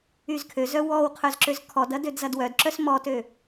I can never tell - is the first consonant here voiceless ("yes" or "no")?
no